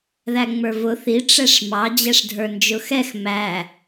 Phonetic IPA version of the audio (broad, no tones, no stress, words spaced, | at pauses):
ðæŋ͡mə˞vʊ θi ʈ͡ʂɛʂmɑ d͡ʑɛʂdʱə˞nd͡ʒʊxɛx mæ